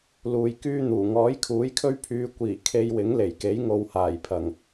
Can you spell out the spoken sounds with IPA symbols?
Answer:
l uː˨ j k yː˥ n̪ uː˨˩ ŋ ɔː˨˥ j kʰ uː˨˥ j kʰ ɵ˥ ɥ pʰ yː˧ kʷ iː˨˩ kʰ e˧ j w ɪ˨˥ ŋ l e˨˩ j k e˨˥ j ŋ o˨ w h aː˨˩ j pʰ ɐ˨˩ ŋ

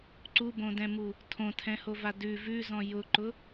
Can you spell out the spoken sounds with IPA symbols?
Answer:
ǀ u b õ d ɛ̃ m u | tʰ õ tʰ ɛ̃ h o v a d ʉ v ʉ z ɔ̃ j ʊ ǃ ʊ

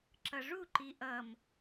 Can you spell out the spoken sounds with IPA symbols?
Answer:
ǁ ʌ ʐ u ǃ i ʔ ʌ m

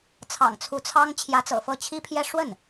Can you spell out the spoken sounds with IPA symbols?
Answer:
t͡sʰ ɑ̰˨˩ ŋ t͡sʰ u˧˥ t͡sʰ ɑ˥ ŋ t͡ɕʰ j ä˧˥ t͡s ɤ̰˨˩ f ɤ˥˩ t͡ɕʰ i˥ pʰ j ɛ˥ ʂ w ə˥˩ n

